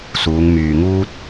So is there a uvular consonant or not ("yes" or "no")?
no